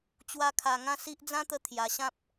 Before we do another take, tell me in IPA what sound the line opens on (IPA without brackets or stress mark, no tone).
t͡ɕ